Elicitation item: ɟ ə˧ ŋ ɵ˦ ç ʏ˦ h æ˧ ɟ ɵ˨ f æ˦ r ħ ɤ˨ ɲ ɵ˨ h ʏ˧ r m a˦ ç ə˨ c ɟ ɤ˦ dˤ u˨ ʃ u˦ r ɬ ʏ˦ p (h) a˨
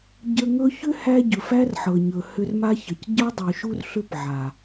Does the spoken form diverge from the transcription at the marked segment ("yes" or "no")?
yes